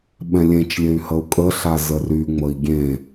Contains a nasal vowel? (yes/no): yes